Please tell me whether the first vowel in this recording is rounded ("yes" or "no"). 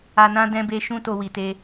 no